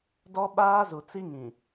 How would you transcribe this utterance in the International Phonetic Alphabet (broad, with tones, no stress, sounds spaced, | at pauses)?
d ɔ˦ ɓ aː˦ z u˨ t͡s i˦ ŋ ĩ˨